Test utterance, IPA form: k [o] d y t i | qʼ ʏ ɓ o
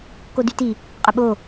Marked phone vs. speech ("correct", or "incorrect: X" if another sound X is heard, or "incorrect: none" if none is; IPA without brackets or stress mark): correct